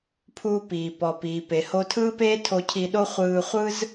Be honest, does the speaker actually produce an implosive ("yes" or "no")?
yes